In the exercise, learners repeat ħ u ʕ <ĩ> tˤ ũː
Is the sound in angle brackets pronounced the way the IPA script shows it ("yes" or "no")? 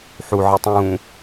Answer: no